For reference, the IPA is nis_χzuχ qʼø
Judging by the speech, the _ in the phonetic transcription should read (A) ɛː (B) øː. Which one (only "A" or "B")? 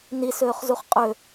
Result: B